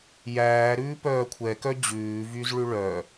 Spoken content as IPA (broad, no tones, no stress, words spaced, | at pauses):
jæː ɾʉːpœːkʷʰɛkœ d͡ʑʉːvyz ɭʉɭœ